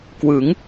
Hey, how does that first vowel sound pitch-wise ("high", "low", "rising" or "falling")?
rising